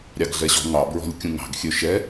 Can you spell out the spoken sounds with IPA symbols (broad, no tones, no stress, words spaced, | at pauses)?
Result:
ɾʲɑɡɮɛɕɔ̤ ŋɑ bɹɔ̤lʲkʲũŋɑ̤ɡ xʲøʃɛ